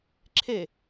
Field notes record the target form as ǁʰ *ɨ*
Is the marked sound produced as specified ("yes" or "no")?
no